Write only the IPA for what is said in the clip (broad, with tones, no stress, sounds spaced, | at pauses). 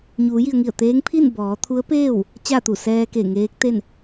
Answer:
ɲ uː˩˧ j i˩ ə̯ ŋ i˧˩ ə̯ t̪ eː˧˥ ŋ pʰ i˥˨ n b ɔː˩˧ t̪ʰ u˧˥ ə̯ p eː˥˨ w | t͡ɕ a˥˨ t̪ u˧˩ s ɛː˧ k e˧˩ ŋ eː˧˥ k̚ t̪ e˥˨ n